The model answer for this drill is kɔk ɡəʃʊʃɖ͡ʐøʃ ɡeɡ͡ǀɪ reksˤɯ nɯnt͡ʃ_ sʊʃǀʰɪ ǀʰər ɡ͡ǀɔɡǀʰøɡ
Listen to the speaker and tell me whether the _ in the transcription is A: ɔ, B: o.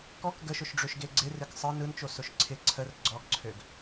B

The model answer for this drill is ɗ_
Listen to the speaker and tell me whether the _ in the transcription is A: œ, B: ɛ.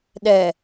B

